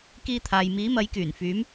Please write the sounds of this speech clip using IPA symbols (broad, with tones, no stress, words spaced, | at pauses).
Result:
kiː˧t̪ʰaː˨j miː˨˧mɐ˨˧jkyː˨˩nfyː˨˧m